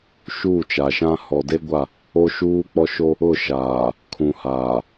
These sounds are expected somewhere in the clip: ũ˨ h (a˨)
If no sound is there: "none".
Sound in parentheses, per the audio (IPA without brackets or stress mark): aː˨